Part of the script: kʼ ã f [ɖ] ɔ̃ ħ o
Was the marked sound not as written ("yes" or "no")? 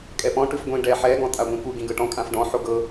no